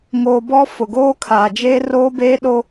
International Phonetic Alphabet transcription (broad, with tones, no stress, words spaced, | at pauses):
ŋoː˨bɔ˦ fʊ˨ɡoː˦kʰaː˨d͡ʒeː˦ roː˦beː˦ ɗo˦